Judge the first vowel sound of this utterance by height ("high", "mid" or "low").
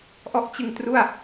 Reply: mid